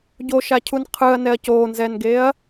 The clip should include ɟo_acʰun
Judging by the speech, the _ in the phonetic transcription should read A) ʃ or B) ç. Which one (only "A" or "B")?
A